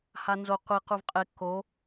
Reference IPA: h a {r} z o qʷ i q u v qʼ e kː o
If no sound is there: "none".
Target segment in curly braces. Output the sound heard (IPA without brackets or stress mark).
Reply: n